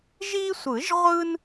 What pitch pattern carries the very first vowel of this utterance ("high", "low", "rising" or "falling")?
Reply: high